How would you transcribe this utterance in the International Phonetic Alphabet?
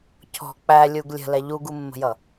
cʰ ɔ̤ k͡p æ lʲ u ɡ lʲ ə̤ l ɛ ʎ u ɡ u mː ə̤ j ʌ

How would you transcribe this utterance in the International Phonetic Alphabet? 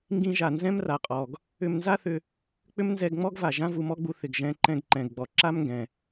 ŋ ɡ ĩ˧ ʒ a˩ n z ɛ̃˥ m r a˩ qʼ ɔ˩ ɡ | ʏ˧ m n z a˥ θ ʏ˧ | k͡p ʏ˥ m n z ɛ˧ ɡ ŋ͡m ɔ˥ ɡ v a˩ ʒ ã˥ v u˧ m ɔ˥ ɡ͡b u˧ θ ɪ˩ ɡ ʒ ɛ̃˧ ǃ ɛ̃˧ ɡ ǃ ɛ̃˩ ɡ ɡ͡b ɔ˩ ǁ a˥ m ŋ ɡ ɛ̃˩

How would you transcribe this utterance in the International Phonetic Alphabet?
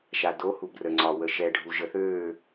ʃ a d o h u b r ə ŋ͡ǀ ɒ w ə ʃ ɛ ɖʱ u ʒ ə θ ø

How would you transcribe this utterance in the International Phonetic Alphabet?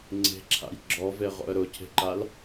ŋ͡ǀ e̤ ǁʰ a̰ j ɡ͡ǁ ɔ v e ʁ o̰ ə̯ ɾ ʊ cʰ e̤ ǃ a l

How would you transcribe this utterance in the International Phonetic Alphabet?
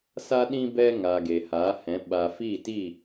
s a˦ ɗ ĩ˦ b ɛ˦ ŋ a˨ ɡ e˨ h a˨˦ h ɛ̃˨˦ ɓ a˨ f i˦˨ t i˦˨

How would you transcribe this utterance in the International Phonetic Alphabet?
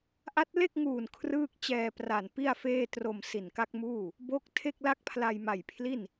ʔ a˦˥ t̚ l e˥˩ k̚ ŋ uː˨˩ n kʰ r ɯː˥˩ k̚ t͡ɕ ɛː˧ p r a˨˩ n p i˥˩ a̯ f eː˥˩ t r o˧ m s i˨˩ n k a˦˥ k̚ m uː˥˩ | b o˦˥ k̚ tʰ e˥˩ k̚ l a˥˩ k̚ pʰ l a˧ j m a˨˩ j pʰ l i˥˩ n

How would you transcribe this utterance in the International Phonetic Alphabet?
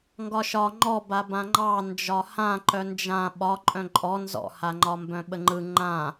ŋ ɡ ɒ ʃ ɒ ŋ͡ǃ ɔ b a b ã ŋ͡ǃ ɑ n d͡ʒ ɒ h ã ǃ œ n d͡ʒ ã ɓ ɒ ǃʼ œ̃ ǃʼ ɔ n z ɔ̰ h a ŋ͡ǃ ɒ m b œ̃ ɓ ə ŋ͡ǃ ɯ ŋ͡ǃ ã

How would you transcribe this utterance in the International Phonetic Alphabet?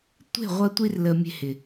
tʷ e̤˦˨ ʁʷ ɐ˧ tʷ i˧ r l ə˨ mʲ e̤˧ h ɪ˨

